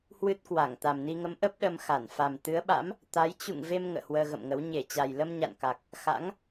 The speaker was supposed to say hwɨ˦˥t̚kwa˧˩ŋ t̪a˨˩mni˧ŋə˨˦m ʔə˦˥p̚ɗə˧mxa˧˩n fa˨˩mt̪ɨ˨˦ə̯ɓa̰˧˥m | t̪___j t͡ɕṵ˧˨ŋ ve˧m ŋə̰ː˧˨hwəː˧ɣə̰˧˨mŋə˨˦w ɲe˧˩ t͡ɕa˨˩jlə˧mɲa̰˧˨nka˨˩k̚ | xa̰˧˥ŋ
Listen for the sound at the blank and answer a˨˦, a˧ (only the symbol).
a˨˦